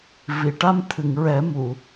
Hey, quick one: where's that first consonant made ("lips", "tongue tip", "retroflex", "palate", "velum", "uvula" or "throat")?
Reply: lips